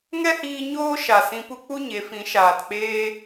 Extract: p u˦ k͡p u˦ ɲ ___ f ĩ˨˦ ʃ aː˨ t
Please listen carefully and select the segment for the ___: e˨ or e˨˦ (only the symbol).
e˨˦